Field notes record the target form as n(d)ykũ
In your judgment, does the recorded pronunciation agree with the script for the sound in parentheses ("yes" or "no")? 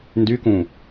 yes